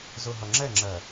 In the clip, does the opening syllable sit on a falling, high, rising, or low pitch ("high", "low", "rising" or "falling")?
low